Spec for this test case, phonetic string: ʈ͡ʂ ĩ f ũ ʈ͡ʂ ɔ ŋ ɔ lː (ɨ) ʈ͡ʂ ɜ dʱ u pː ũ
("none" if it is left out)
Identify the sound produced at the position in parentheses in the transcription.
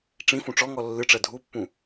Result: ɨ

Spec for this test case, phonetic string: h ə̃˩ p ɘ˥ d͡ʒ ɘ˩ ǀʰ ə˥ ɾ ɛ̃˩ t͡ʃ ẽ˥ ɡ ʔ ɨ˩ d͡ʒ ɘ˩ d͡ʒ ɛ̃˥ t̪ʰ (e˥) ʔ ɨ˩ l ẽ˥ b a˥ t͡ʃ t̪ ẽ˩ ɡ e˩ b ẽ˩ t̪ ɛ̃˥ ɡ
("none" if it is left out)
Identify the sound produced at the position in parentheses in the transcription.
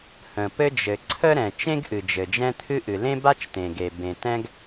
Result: ɨ˥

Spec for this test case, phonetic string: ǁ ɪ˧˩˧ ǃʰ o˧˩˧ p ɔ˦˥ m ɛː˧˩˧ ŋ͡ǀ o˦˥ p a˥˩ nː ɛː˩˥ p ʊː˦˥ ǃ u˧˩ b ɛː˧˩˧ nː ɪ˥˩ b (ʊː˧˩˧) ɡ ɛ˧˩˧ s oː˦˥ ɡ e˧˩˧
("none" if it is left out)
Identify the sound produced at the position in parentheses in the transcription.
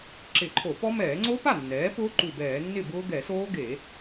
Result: ʊː˦˥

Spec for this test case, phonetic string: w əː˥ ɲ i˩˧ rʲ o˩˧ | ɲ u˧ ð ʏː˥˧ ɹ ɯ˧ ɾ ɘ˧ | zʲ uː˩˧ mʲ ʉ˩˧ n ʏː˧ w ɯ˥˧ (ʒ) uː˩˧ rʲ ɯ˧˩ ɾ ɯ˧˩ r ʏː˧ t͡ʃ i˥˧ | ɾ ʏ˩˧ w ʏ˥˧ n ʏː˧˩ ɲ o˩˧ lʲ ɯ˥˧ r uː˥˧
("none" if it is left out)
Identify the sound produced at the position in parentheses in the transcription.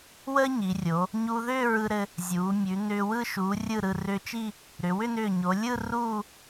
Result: ʃ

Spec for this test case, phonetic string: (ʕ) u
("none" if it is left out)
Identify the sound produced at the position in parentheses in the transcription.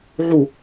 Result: ʕ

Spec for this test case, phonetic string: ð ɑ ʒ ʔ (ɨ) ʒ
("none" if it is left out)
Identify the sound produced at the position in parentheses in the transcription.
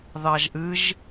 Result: ɨ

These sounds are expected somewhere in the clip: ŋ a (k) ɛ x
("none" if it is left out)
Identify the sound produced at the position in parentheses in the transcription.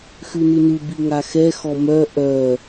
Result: x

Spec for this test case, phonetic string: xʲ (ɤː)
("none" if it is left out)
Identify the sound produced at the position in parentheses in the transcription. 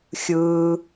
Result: ɯː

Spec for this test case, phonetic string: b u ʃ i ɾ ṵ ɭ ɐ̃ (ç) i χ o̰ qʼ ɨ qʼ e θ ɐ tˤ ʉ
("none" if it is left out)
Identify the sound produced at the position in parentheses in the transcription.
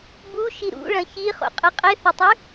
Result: ç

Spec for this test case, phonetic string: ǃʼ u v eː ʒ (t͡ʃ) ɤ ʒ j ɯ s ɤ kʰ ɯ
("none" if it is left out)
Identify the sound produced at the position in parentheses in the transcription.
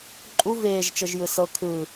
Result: t͡ʃ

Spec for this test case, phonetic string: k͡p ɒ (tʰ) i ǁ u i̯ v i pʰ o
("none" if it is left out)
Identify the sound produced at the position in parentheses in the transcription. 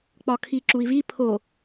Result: kʰ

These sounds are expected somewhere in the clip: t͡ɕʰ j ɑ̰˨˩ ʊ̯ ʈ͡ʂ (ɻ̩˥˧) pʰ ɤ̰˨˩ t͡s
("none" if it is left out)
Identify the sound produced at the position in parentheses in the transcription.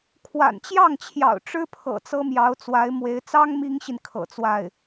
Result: ɻ̩˥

